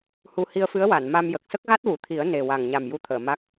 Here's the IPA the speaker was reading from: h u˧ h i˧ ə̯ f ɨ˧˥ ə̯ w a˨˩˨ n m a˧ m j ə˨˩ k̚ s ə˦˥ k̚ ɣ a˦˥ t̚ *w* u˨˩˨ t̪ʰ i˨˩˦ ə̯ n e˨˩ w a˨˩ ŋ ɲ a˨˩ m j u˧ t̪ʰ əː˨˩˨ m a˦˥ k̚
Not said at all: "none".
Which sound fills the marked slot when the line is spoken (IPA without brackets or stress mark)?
w